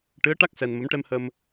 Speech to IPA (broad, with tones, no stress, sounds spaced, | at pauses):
ʈ ɨ˧˥ ə̯ ʈ a˦˥ k̚ s ɛ˧ n m ə˧˥ m ʈ ɛ˧ m h ə˧ m